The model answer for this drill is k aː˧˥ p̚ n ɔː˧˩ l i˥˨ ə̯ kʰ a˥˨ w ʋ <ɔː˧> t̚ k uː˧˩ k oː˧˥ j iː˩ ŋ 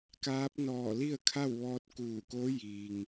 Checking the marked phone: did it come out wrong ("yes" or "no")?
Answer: no